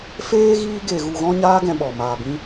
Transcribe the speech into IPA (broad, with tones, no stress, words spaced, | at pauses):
feː˦ɣiː˦ɡe˧ ɣu˧ɣɔ̃˦ɲaː˦ ɡɛ̃˧ɓɔ˨ maː˧bĩ˦